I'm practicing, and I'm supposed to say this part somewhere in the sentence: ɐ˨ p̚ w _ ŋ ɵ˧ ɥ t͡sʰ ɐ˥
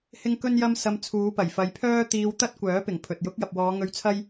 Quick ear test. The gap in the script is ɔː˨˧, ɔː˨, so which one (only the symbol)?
ɔː˨˧